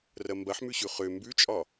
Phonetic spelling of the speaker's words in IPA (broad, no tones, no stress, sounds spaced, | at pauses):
r ɐ m b ɐ ħ m ʉ ɕ ʉ χ ø m b ʉ t͡ʃʼ ɒ